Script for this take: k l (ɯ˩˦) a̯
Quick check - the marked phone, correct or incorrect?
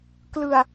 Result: incorrect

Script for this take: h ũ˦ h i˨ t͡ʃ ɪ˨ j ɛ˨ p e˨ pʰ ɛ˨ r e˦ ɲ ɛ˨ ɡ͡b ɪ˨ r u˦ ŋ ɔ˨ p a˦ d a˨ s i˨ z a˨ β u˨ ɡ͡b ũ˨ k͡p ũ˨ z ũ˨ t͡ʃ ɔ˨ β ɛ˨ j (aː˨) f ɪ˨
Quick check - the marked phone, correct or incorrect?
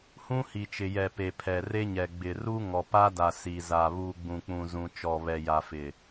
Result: incorrect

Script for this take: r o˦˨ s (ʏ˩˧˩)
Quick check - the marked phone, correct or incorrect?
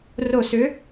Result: incorrect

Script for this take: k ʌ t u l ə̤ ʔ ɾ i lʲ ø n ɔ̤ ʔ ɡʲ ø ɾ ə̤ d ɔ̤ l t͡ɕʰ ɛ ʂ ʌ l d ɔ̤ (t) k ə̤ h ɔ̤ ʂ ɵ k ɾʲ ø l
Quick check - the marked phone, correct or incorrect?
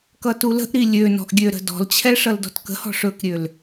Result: correct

